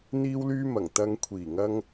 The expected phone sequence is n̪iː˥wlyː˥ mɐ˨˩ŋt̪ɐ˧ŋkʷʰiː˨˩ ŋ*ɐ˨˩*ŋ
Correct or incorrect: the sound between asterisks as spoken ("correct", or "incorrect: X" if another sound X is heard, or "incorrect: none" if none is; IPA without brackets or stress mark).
incorrect: ɐ˥